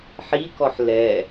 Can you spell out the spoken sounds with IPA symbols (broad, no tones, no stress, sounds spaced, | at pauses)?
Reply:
ħ i k ɔ ħ l ɛ